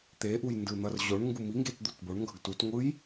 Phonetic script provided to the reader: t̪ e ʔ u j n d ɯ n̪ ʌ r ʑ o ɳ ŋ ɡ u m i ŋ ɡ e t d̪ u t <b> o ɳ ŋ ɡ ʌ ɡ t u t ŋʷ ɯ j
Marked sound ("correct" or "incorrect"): correct